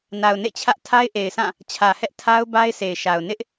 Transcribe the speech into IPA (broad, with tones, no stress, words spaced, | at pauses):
na˨ʊ̯nḛ˦˨t͡ɕʰä˦ʔ tʰa˦ɪ̯ʔe˨ɪ̯sã˦˨ | t͡ɕʰä˨hɛ˦ʔ tʰa˦ʊ̯ ba˦ɪ̯se˨ɪ̯ʃa˨ʊ̯ nɪ˦ʔ